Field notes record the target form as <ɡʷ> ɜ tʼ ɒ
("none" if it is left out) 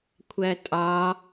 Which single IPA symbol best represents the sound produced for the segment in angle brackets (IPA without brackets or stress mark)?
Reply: kʷʰ